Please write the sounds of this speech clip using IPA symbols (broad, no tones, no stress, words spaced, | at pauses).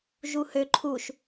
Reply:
ʒuhø ǃʰuʃ